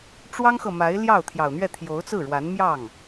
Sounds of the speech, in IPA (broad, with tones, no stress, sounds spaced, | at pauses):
ʈ͡ʂ w ɑ˥ ŋ x ɤ˨ m a˧˥ ɪ̯ l j ɑ˥˩ ʊ̯ t̪ʰ j ɑ˨˩ ʊ̯ n̪ ɥ ɛ˥˩ t̪ʰ j o˧˥ ʊ̯ t͡s ɹ̩˥˩ ɻ w a˧˥ n m j ɑ˥˩ ŋ